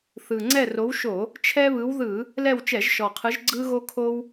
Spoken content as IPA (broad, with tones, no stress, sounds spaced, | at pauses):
θ ɯ˨˩ ŋ͡ǀ ɛ˦˨ r o˨˦ w ʃ o˧˩˧ | t͡ʃʰ ɛ˦ β ɯ˨˦ w ð ɯ˧˩˧ | l ɛ˦˨ w t͡ʃ ɛ˧˩˧ ʒ ʃ ɔ˨˩ qʰ ɯ˨˦ ʒ ɡ͡ǀ ɯ˦ ɣ o˦ kʰ o˦ w